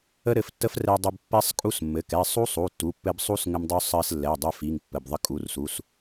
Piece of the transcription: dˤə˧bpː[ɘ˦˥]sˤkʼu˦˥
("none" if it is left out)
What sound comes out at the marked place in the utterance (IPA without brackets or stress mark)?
ɛ˦˥